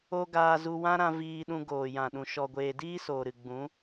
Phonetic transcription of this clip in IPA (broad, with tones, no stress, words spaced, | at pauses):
o˦ɡaː˧zu˧ wã˦ɾã˧ viː˧ɗũ˧ ɡoː˨jã˨ɗũ˨ ʃɔ˨ɡʷeː˨diː˦ soː˨ɾɨ˨ɡ͡bũ˨˦